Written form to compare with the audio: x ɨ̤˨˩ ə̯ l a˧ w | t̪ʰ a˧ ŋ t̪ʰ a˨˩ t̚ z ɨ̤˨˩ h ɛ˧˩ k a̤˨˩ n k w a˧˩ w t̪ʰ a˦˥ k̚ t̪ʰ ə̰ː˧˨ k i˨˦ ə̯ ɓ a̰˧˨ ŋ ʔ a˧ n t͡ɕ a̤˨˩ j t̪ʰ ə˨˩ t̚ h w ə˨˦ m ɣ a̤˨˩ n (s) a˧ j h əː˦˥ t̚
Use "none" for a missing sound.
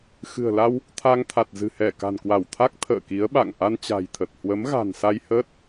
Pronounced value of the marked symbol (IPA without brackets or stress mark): s